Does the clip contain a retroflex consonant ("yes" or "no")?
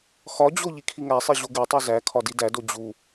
no